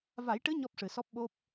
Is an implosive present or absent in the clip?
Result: present